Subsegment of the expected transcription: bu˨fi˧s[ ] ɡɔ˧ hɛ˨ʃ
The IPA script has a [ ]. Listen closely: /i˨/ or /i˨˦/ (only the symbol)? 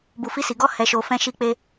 i˨